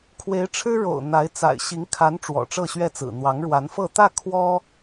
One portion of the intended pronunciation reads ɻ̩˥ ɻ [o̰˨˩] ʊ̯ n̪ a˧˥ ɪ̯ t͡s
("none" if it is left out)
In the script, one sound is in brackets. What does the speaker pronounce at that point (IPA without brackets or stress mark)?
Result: o̰˨˩